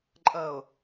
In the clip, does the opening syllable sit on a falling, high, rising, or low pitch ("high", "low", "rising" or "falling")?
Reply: low